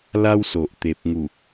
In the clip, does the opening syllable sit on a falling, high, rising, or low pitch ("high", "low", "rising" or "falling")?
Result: high